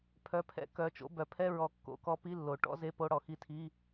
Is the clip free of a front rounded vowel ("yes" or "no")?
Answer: no